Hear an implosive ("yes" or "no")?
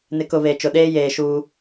yes